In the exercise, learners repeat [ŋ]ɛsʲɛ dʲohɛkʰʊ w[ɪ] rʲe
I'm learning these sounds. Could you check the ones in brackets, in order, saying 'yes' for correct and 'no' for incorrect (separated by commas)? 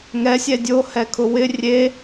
yes, yes